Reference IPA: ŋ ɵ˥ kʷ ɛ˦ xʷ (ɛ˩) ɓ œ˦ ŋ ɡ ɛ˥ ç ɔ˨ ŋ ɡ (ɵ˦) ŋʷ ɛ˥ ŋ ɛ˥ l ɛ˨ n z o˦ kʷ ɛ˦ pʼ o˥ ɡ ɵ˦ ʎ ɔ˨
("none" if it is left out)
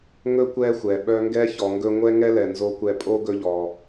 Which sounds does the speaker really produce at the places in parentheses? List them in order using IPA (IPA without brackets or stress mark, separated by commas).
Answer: ɛ˩, ɵ˦